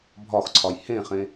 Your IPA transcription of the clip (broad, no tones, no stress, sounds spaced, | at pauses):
bʱ ɒ x ǀʰ ɒ j h ẽ χ ẽ